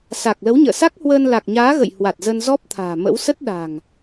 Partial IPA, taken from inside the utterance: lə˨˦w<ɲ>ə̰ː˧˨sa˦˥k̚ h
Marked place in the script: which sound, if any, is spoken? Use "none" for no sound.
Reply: ɲ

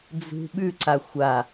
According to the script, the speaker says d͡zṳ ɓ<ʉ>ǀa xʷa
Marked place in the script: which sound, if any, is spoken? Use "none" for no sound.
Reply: ʉ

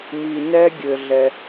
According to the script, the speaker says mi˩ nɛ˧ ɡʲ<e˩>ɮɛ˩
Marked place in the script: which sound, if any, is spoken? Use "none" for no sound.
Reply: ɘ˩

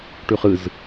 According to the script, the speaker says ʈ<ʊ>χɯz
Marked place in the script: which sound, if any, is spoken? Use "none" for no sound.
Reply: ʉ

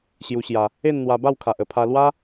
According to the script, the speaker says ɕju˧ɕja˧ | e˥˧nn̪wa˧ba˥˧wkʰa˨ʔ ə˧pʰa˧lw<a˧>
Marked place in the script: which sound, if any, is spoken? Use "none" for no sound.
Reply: a˦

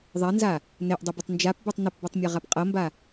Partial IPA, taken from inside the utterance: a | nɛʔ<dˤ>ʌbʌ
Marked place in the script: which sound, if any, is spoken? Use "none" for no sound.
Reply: dˤ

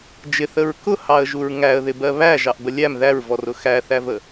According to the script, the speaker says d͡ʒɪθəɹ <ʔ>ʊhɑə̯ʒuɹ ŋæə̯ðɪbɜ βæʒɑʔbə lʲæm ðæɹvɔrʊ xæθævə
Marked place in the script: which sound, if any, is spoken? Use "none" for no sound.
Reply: k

